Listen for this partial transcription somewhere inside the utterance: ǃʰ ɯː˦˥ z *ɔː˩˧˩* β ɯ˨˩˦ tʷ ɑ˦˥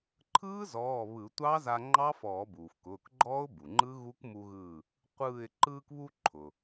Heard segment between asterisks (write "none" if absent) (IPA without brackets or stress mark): ɔː˩˧˩